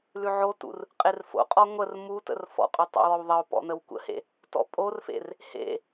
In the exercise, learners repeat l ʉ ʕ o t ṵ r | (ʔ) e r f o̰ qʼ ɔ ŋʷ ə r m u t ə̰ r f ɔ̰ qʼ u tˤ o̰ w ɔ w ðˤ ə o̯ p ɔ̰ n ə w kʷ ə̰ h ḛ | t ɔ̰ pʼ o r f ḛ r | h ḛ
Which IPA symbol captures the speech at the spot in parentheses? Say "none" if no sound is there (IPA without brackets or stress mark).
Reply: qʼ